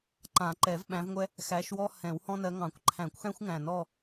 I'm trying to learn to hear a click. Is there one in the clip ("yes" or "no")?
yes